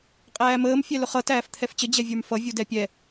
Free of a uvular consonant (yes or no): no